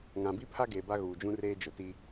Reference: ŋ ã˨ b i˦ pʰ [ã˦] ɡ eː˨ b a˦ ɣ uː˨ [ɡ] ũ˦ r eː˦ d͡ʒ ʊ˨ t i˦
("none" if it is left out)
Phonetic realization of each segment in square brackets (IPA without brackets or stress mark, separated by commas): a˦, d͡ʒ